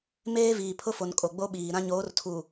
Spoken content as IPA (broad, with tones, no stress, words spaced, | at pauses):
meː˦viː˨pʰʊ˦fo˨n kʼo˨ɡ͡bo˦ɓiː˨ɾã˦ ɲoː˨˦rtʰu˨